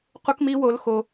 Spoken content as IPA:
q u˦ k m i˦ w o˦ l x o˦

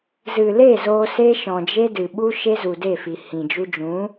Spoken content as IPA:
z ɨ˨ l e˦˨ z oː˧ s e˦ ʃ ɔ̃˨ d͡ʒ e˦ d ɨ˨ ɓ u˦ ʃ e˦ z u˨ d e˦˨ f i˨ h ĩ˨ d͡ʒ u˧ d͡ʒ ũ˨˦

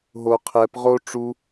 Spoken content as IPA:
ɦ o qʰ ɛ p ʁ o ʈ͡ʂ u

